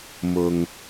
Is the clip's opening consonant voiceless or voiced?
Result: voiced